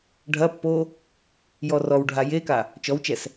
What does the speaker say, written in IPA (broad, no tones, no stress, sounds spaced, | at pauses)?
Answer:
ɖʱ ɐ pː o | j ɔ r ɔ w ɖʱ a j e k a | t͡ʃ ɔ w t͡ʃ ɛ s